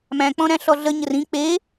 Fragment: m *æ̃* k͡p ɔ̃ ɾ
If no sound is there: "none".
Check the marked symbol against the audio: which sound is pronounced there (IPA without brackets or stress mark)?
æ̃